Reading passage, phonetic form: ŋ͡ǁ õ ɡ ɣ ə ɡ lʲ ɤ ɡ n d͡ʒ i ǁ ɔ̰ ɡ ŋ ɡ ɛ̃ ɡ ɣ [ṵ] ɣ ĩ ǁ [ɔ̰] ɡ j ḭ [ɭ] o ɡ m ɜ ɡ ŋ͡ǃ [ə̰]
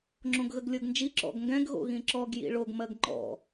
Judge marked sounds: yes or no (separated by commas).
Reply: no, no, yes, no